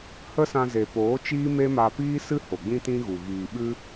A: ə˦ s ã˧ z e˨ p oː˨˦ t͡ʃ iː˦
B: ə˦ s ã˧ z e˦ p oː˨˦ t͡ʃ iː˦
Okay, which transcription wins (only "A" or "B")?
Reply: A